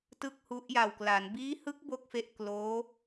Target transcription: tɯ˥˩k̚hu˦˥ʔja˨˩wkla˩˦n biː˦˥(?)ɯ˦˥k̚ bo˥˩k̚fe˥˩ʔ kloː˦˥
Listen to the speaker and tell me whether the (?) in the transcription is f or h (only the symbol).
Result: h